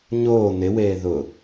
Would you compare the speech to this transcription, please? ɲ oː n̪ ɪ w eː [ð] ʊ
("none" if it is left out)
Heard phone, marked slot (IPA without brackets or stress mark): ð